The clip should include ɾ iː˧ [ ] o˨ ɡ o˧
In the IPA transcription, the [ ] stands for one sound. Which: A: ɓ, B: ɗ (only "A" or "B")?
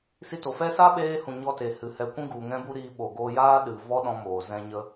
A